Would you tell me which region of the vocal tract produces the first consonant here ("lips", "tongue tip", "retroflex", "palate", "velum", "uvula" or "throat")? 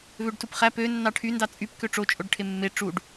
lips